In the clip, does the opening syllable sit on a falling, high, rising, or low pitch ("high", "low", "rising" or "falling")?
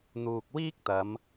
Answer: low